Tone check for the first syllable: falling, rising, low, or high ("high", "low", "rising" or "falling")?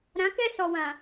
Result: rising